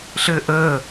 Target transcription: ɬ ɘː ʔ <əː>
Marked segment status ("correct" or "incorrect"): correct